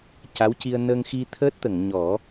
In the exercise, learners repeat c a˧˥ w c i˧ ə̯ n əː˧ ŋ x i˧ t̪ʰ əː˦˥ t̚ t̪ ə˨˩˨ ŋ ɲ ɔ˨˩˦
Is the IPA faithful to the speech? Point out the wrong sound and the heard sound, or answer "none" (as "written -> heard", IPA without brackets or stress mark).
none